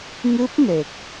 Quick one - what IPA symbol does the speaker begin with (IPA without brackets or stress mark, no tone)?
ŋ